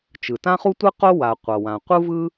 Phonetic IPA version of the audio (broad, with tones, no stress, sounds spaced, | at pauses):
t͡ʃ ɯ˩ t ã˥ χ u˥ tʷ ɯ˥ q o˥ w a˩ qʷ ʌ˩ w ã˩ qʷ ɯ˥ v ɯ˥